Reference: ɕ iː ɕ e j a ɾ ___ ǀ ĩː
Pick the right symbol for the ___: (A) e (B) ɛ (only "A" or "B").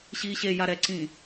B